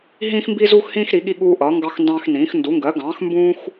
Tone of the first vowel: high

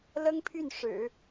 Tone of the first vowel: high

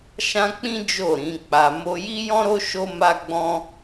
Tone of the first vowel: high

